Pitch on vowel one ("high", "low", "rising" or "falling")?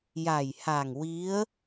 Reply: low